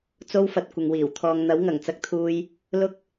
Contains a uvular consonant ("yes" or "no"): no